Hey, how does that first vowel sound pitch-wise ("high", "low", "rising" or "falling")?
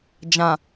low